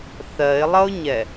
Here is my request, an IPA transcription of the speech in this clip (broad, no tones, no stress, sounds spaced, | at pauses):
θ ɜ ɪ̯ lˠ ʌ ʊ̯ ɲ ɛ